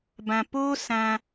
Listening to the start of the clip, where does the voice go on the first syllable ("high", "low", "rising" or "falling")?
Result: low